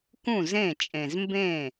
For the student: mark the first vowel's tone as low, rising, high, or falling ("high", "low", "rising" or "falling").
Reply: falling